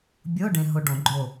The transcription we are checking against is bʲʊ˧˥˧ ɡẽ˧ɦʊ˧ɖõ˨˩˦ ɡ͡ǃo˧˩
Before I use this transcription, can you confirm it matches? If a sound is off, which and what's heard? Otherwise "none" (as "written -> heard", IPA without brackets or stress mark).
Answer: ɡ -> ɖ